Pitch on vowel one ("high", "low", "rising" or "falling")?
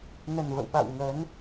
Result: low